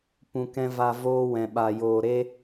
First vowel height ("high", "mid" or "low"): high